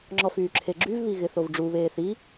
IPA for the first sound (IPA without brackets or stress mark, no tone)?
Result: ŋ͡ǁ